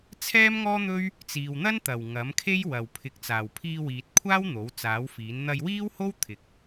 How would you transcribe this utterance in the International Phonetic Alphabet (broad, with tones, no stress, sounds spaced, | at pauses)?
t͡sʰ ɛː˥ m ŋ ɔː˥ n̪ ɵ˥ ɥ | t͡s iː˨ w n̪ ɐ˥ n t̪ ɐ˨˩ w ŋ ɐ˨˥ m kʰ e˥ j w ɐ˨ w pʰ ɪ˨˥ k̚ t͡s aː˨˩ w pʰ iː˧ w iː˨ t̚ kʷʰ aː˥ w n̪ o˨˥ w t͡s aː˨˥ w f iː˨˥ n n̪ ɐ˧ j w iː˥ w h o˥ w t̪ʰ ɪ˨ k̚